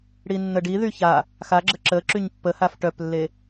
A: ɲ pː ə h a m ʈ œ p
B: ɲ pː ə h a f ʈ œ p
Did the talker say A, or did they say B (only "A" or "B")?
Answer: B